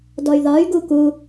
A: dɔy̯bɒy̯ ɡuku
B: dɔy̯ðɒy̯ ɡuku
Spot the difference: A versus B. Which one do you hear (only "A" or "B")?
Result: B